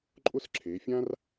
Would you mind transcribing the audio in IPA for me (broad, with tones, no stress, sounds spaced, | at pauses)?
ǃʼ ʊ˥ s ǁʰ e˩˧ fʲ ã˥ r